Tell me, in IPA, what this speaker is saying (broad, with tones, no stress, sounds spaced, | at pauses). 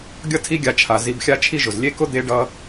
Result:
ɡʲ ʌ˦ tʰ i˦ ɡʲ a˧ t͡ʃʰ a˨ z i˧ b xʲ a˦ t͡ʃʰ i˦ ʒ ʊ˨ z lʲ e˦ k ʊ˦ d̪ e˦ ɖ ʌ˦